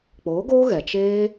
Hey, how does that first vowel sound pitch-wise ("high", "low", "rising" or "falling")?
rising